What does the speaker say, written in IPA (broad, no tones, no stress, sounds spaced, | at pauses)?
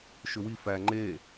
ʃ ʏ w i f æ ŋ͡ǃ e